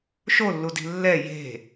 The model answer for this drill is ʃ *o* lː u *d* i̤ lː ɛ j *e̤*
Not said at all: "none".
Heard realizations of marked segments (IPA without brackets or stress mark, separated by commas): o, d, e̤